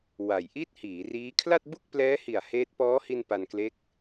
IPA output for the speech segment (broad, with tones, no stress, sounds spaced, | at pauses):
w a˨˩ j ʔ i˥˩ t̚ h iː˩˦ r iː˦˥ kʰ l a˥˩ t̚ b u˥˩ k̚ p l ɛː˦˥ h i˨˩ a̯ h eː˦˥ t̚ p ɔː˦˥ h i˧ n p a˧ n k l e˦˥ k̚